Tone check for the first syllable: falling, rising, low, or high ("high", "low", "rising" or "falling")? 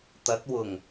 rising